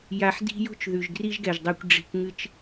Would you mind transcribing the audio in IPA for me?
ja˧ħdi̤˦ jo̤˦t͡ʃðʉ˨ʒ ɡri˦ʒɡɛ˨ʒdˤɛ˧kʷ ɖ͡ʐi̤˧kʷ ŋɨ˧t͡ʃ

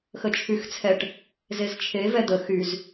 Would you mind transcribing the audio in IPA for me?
xət͡ʃʰyxt͡sʰɛʈ | zezt͡ʃʰe vɛd̪ə xyz

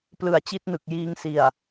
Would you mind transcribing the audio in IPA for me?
plɯ˨˩a̯t͡ɕi˥˩t̚nɯ˨˩k̚ jiː˧ŋsi˨˩a̯

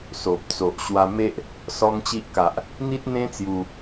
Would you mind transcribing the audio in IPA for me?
so˨p̚ t͡so˨ʔ ɕwa˧ me˦ʔ | sɔ˦ŋt͡ɕi˦ʔ ka˨ʔ | n̪i˦t̚n̪ẽ˦t͡sju˧

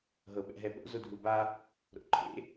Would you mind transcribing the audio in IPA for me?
ɦɤɓɛ̰ɦɛɓo̰ zodʱuba | ɾo̰ǃʰḛ

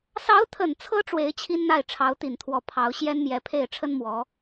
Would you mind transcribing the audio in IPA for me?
sɑ˧˥ʊ̯t̪ʰə˨˩nt͡sʰɤ˧˥ ʈ͡ʂwe˧˥ɪ̯t͡ɕʰi˥nn̪a˥˩ɪ̯ ʈ͡ʂʰɑ˧˥ʊ̯t̪i˨˩nt̪ʰwɔ˧˥ pʰɑ˧˥ʊ̯ ɕjɛ˥nmjɛ˧˥pʰe˥˩ɪ̯ ʈ͡ʂʰə˥nmwɔ˧˥

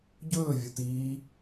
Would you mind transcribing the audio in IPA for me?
ɟɵːvʲu tiː

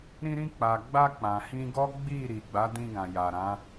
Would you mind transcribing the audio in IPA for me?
ɾĩ˧ɾĩ˧k͡pa˨ɡ͡ba˧ k͡pã˨hĩ˧ɡɔ˦ ɡ͡bi˦˨ ɾi˨ɡ͡ba˨˦dĩ˧ɡã˨ ja˨ɾã˨˦

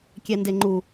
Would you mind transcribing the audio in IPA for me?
kʲɛndeŋ͡ǃu

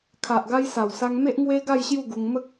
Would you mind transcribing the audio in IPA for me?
kʰa˨ʔɡa˧jsa˨˩wsa˧ŋ me˦ʔŋwe˦ ɡa˥˧jɕju˥˧ɡu˧ŋ mə˦k̚

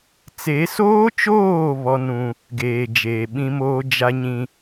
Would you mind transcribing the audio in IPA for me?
t͡se˨˦soː˦t͡ʃoː˦˨ βɔ˦nũ˦ | ɡeː˨d͡ʒeː˨ɓĩ˦moː˦ d͡ʒa˦ɲĩ˦

